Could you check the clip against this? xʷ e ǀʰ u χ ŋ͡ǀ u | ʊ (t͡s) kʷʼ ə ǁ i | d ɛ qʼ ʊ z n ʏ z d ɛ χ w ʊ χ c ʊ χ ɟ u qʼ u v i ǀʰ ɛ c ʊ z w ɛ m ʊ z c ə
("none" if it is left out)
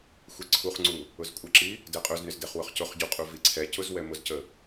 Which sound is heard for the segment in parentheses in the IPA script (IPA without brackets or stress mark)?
z